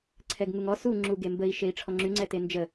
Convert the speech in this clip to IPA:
ǀʰɛɡŋuŋɔ suŋ͡ǁuɡe mbəi̯ ʃei̯ʈ͡ʂʰɔŋ͡ǁyŋ͡ǀɛ tend͡ʒə

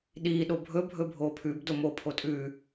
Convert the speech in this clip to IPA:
ɗiː ɗobʱɵ bʱɵbʱoːpʰʉb domo pʰotʼʉ

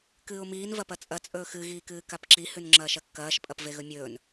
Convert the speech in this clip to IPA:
kɨːʊ̯miːn vɐpɐt͡sʼɐ t͡sʼɵːxɨ ɣiːkɨːkapǁi hʉnŋ͡ǁɐːʃɐkːɐːʃ pʼɐpveɣɵmʲɵːn

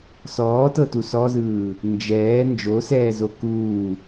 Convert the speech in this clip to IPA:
sɔːtɤtu sɔzɯː | nd͡ʒɛː nd͡ʒosɛːzo kuː

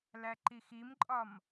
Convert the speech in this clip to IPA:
læǃiximǃʼɒm

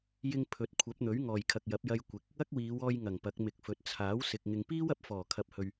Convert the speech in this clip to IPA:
jɪ˧ŋ pʰɵ˨˥t̚kʷʰɐ˨˥p̚n̪ɵ˨˥ɥ ŋɔː˨˩jkʰɐ˨k̚jɐ˨˥p̚jɐ˧j kʷɪ˨˥k̚ | ɐ˥k̚wiː˨˧wɔː˧jŋɐ˨˩ŋ pɐ˨˥k̚mɪ˨k̚fɵ˨t̚ t͡sʰaː˨˥wsɪ˨k̚ ŋɪ˨ŋpiː˥w ɐ˨p̚fɔː˨˩ kʰɐ˨p̚hɵ˨ɥ

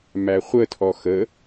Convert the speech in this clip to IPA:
mæχʷətʰɔ xə

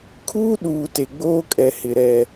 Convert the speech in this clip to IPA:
kʰuː˦ɗuː˨ te˨ɡ͡boː˦kʼɛ˨ hɪ˨ ɾɛ˨

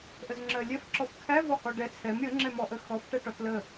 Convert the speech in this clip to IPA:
ʔəzŋ͡ǁɜlʲɛf ǁɔfkʰæ vɔhɔɖɛ t͡sʰɛm ɾʲə ŋ͡ǁɛmɔʔə xɔf ʈɛʈɔtlə

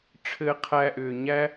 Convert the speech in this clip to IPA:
ʈ͡ʂʰɘː˦ qʰæ˧ʔʏː˨ ɲæ˦

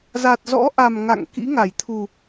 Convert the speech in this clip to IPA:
za˨˩t̚zɔ̰˧˥ʔa˨˩m ŋa̰˧˨ŋkḭ˧˥ ŋa˧˩jt̪ʰu˨˩

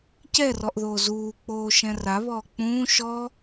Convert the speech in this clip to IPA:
cɛrɔʔðoː zuːk͡poːʃɛ̃ raβɔː k͡pũː ʃɔ

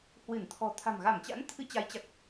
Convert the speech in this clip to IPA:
hwɨ˧˩n t̪ʰɔ̤˨˩t̪ʰa̤˨˩m ɣa˧˩mt͡ɕa̰˧˥n t̪ʰɨ˧t͡ɕa˨˦jt͡ɕa˨˩k̚

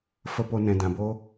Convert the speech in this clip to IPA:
fə˦po˦ nɛ̃˧dã˧bo˦

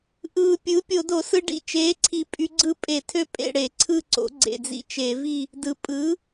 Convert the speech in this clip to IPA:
ʔɯː˨˩ pʲɯː˩˥pʲo˧˩˧do˧˩˧sɯ˧ ɖḭ˨˩t͡ʃeː˩˥ǀʰi˨˩ pʼy˧ɡ͡ǀɯ˥˨ pʼe˧˩˧tʰø˥˨ pʼḛ˥˨ɽe˧˩˧ ǀʰɯ˥˨ǀo̰˩˥ ɡ͡ǀḛ˨˩d͡zḭ˧t͡ʃe˧˩˧vi˥˨ | dɯ˨˩ pʼɯː˩˥

